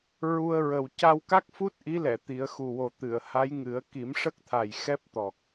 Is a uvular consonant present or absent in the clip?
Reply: absent